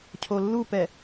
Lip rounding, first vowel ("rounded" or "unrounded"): rounded